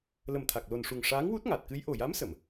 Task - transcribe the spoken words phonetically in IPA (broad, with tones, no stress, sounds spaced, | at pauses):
l ə˨˩ m t̪ʰ a˨˩ k̚ l o˨˩ n ʂ u˨˩ ŋ ʂ aː˧˥ ŋ w u˦˥ t̚ ŋ a˨˩ t̚ k ɨ˧˥ j ʔ o˨˩ j a˧˥ m s ə˨˩˨ m